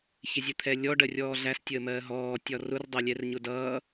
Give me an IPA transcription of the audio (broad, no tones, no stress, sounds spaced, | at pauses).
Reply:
ç ɪ zʲ ə t̪ʰ ɛ lʲ ɔ ɖ ɜ rʲ ɔː ɮ æ s tʲ əː m ɜː ɦ ɔː tʲ ɒ r ʊ r dˤ ɜ lʲ ɛ r ɲ ʊ d ʌː